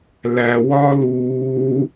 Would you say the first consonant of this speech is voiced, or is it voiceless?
voiced